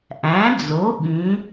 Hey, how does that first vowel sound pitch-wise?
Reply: rising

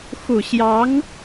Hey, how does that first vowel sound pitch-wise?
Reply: low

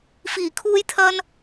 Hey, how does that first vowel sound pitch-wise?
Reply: low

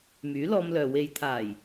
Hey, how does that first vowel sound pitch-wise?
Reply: rising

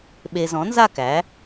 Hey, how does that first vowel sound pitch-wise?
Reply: low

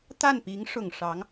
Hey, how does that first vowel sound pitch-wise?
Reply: falling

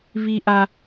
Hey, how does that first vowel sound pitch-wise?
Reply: high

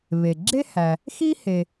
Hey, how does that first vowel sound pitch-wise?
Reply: low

